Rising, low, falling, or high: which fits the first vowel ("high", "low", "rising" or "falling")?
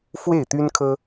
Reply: falling